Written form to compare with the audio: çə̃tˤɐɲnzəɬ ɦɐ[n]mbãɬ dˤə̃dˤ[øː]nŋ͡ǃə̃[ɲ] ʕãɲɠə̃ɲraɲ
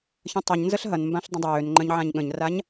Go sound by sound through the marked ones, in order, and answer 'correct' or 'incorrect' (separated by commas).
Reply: correct, correct, correct